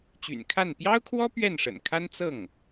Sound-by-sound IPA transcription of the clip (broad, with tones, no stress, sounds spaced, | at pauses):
t͡ɕ y̰˨˩ n kʰ a˥˩ n p j ɑ˥ ʊ̯ kʰ w ɔ˥ p ɥ ɛ˥˩ n ʂ ə̰˨˩ n kʰ a˥ n t͡s ɤ˥˩ ŋ